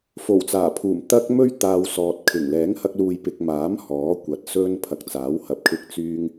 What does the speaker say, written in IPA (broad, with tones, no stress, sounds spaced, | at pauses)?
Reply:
f o˨˩ w t͡s aː˨˩ pʰ uː˨˩ m t̪ ɐ˧ k̚ m ɵ˥ ɥ t̪ aː˧ w s ɔː˨ t̚ kʰ ɪ˨˩ ŋ l ɛː˨˥ ŋ h ɐ˧ k̚ l uː˨ j p ɪ˨ k̚ m aː˨˥ m h ɔː˨˥ kʷ ɐ˨˥ t̚ s ɵ˧ n pʰ ɐ˨ k̚ t͡s aː˨˥ w h ɐ˨ p̚ kʰ ɪ˧ k̚ t͡s yː˧ ŋ